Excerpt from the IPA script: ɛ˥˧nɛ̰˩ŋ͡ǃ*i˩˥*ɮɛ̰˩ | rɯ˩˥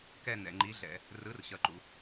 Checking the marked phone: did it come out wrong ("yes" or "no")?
no